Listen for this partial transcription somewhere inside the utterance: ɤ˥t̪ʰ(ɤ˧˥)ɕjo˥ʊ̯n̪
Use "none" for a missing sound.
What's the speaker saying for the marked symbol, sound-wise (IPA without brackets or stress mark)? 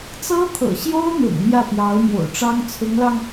ɤ̰˨˩